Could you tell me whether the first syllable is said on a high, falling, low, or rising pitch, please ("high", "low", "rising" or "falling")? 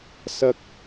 high